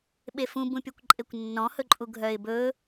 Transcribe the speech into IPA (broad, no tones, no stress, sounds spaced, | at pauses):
ɓ e f ũ b ũ pʲ o kʷ ǃʼ e kʷ nː ɔ̃ h ɵ ǃʼ u ɡʱ œ ɪ̯ b ɵ